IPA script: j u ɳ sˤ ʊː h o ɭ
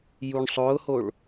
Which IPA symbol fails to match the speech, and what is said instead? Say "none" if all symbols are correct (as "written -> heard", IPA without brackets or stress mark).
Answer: none